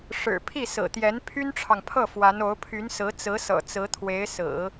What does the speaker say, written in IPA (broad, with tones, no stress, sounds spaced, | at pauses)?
ʂ ɻ̩˨˩ pʰ i˥˩ s ɹ̩˨˩ t̪ j ɛ˧˥ n pʰ y˥ n ʈ͡ʂʰ ɑ˨ ŋ pʰ ɤ˥˩ f w a˧˥ n o˧˥ ʊ̯ pʰ y˧˥ n s ɹ̩˧˥ t͡s ɹ̩˧˥ s ɤ̰˨˩ t͡s ɹ̩˧˥ t̪ʰ w e˧˥ ɪ̯ s ɹ̩˨˩˦